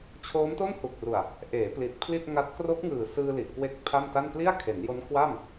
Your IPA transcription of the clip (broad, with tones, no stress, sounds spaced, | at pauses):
t͡ɕʰ oː˦˥ m t o˥˩ n h u˨˩ k̚ r u˨˩ a̯ | ʔ eː˩˦ p l i˨˩ t̚ pʰ l i˥˩ t̚ ŋ a˦˥ t̚ k r o˦˥ k̚ ŋ ɯː˨˩ s ɯː˧ l i˨˩ ʔ k w e˦˥ k̚ pʰ a˥˩ m t a˥˩ n p l i˥˩ a̯ kʰ e˩˦ n j o˦˥ n k w a˥˩ m